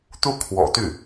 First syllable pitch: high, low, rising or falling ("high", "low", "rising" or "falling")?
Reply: falling